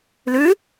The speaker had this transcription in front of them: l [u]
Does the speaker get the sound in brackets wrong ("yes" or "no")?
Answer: yes